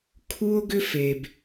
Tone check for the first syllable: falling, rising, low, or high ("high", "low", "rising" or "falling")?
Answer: high